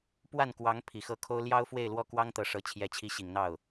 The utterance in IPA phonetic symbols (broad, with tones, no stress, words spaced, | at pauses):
pwa˥˩nkwɑ˧˥ŋ pʰi˨˩xɤ˥˩kʰo˥ʊ̯ ljɑ˥ʊ̯fwe˥˧ɪ̯lwɔ˥˩ kwɑ˥ŋt̪ɤ˧˥ʂɤ˧˥ t͡ɕʰjɛ˧˥t͡ɕʰi˧˥ɕi˨˩ŋn̪ɑ˥˩ʊ̯